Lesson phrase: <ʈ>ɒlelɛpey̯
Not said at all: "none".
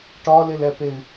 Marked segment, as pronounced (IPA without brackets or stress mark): ʈ